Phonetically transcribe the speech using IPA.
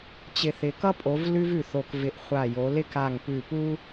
t͡ɕɪ˧˩θɪ˨˦ kʌ˥pʼo˨˦v lʉ˥vʉ˧˩θo˧˩k vɪ˧˩ʔ χʷa˧˩jo˨˦lɪ˥k a˧˩ŋpʉ˧˩pu˥

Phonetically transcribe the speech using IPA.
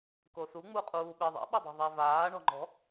kosuŋ͡muqʼuː ɓɪ ðˤḛɓodˤɛ̤ ðˤɛvaː ɳɔ̤ŋ͡ǃɔ̤

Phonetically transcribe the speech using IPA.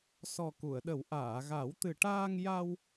sɔ˨˩ku˨˩˨ə̯ɗə˨˩˦w ʔaː˨˩˨ɣa˨˩˦wt̪ɨ˨˩ʈaː˧ŋ ja˧w

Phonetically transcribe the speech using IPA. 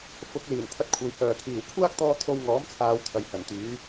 fʊ˨˥k̚ liː˨˩nt̪ʰɐ˧t̚kʷʰɐ˨j hœː˨˩kʰiː˨˩w kʷʰaː˥k̚t̪ɔː˧ t̪ʰo˧wŋɔː˨˥mt͡sʰaː˨˧w t̪ʰɐ˨jhɐ˨˩nt̪yː˨˥

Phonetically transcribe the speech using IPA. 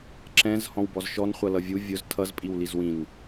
ǁɛ̃z hɔ̃wbɔzʃɔn χʷʌlʌvʲu vʲʊz tʰʌz pʼiwlizwĩn

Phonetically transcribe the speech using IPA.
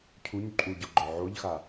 cʰuɲ ǃʼuɟɔɡ͡ǃɔ ʕoʎxa

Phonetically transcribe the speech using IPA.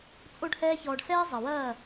t͡sʼo˦ɖhɛː˦çɔː˧ɖ sɛː˦zˤɐ˨wɐː˦˨

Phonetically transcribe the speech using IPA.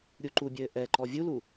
ɾʲuǃubʲɘː ʔɛǃɔ vʲulu

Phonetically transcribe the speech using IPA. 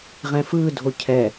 ʁɛ̃fɯdʱo cʰɛ

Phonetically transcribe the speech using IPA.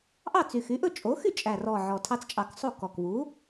ʔɑ˥˩t͡sy˨˩xy˩˥ʔɵ˥˩ t͡ʃʼo˩˥xy˥˩t͡ʃʼæ˨˩rɔ˨˩ ʕɔ˨˩tʰɑ˦t͡st͡ʃʼɑ˨˩˦ksˤo˥˩ kɔ˨˩kβu˩˥

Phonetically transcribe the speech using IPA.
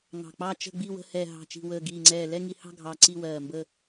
ŋɑ̤˨˩k͡pɑ˦˨ t͡ʃə̤˦˨ɡ͡bi˦˨ wə̤˦˨hɛ˨˩ ɦɑ̤˨˩t͡ʃi̤˨˩wəː˨˩ ɡiː˨˩ŋ͡ǀɛː˨˩ lɛ˦˨ŋi˨˩hɑ̤˦˨ ɡʱɑ˨˩ ǀi˦˨wɜː˨˩mbə˦˨

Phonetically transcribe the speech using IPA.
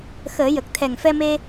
xəː˨˩˦jə˨˩k̚ t̪ʰɛ˨˩ŋfɛ˧me˧

